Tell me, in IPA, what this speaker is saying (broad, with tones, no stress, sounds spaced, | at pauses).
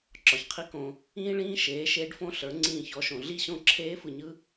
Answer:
ǁ ɒ˩ ç qʰ i˧˥ k õ˩˧ | ĩː˥ ɭ ĩː˥ ʃ eː˩˥ ʃ eː˧˥ ɖ f õ˥ ɬ ə˞˩˥ ŋ͡ǀ ĩː˥˩ ç ɔ˧˥ ʃ õ˩˧ ɮ i˥˩ ɕ õ˥˩ ǁʰ eː˧˥ f ɯ˩˧ ɲ ɯ˥